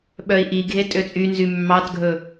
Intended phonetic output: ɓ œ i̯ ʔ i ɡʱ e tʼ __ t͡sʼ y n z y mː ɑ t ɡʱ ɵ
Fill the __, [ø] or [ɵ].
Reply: ø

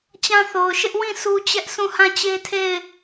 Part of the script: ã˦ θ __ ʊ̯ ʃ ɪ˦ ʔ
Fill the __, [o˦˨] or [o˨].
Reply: o˨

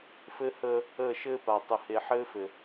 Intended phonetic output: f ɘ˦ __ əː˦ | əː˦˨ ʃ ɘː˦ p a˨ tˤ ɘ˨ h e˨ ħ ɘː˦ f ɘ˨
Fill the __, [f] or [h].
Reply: h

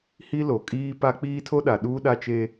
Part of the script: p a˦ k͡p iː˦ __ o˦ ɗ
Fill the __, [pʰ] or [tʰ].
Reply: tʰ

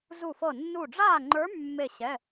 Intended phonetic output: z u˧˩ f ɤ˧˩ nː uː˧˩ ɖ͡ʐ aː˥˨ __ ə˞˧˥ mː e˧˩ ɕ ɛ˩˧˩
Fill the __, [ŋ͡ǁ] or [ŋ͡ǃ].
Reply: ŋ͡ǃ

